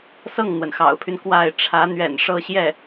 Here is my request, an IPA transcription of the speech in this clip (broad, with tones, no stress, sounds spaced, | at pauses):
s ɤ˥˩ ŋ n̪ w ə˩ n x ɑ̰˨˩ ʊ̯ pʰ y˦ n k w a˥˩ ɪ̯ ʈ͡ʂʰ ä˧˥ n̪ ɥ ɛ̰˨˩ n ʂ ɤ˥˧ ɕ j ɛ˥˩